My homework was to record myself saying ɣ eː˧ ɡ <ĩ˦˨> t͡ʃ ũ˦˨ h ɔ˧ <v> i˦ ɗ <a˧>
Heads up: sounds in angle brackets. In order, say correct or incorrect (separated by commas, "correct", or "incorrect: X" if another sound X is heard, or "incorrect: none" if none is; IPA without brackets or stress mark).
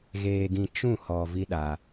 incorrect: ĩ˧, correct, correct